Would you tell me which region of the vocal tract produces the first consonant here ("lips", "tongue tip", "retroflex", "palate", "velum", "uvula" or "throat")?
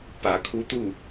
lips